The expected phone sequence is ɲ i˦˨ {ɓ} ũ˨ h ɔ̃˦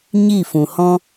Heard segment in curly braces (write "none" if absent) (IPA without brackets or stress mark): f